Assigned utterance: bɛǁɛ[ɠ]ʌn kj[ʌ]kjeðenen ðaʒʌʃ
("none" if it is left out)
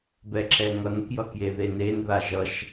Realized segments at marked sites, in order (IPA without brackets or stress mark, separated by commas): ŋ, ʌ